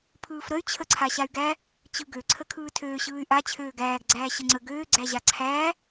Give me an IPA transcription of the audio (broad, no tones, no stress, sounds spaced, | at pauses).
pʰ ɯː f ɾ ə y̯ t͡ɕʰ ə ǀʰ a ɕ a y̯ ɡ æ | t͡ɕ ɯ ɡ ø ǀʰ ə kʰ ɯː tʰ øː ɕ ɯː y̯ ʔ a t͡ɕʰ øː ɡ æː ɡ ɡ͡ǀ æː ɕ ə ŋ͡ǀ ə ɡ øː ɡ͡ǀ æ ʑ a ǀʰ æː